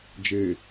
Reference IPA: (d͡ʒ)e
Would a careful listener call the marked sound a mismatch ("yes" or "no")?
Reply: no